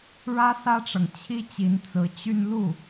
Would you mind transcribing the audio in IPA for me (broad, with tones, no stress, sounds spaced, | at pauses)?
ɻ ä˥ s ä˥ ʈ͡ʂ ɤ˨ ŋ t͡ɕʰ i˥ t͡ɕ i˧˥ n t͡s ɹ̩˧˥ t͡ɕ y˥˧ n l u˥˩